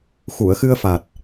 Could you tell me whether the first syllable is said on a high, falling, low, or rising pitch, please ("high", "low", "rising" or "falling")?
low